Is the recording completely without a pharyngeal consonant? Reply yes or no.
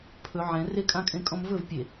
no